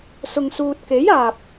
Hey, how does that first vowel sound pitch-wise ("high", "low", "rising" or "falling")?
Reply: low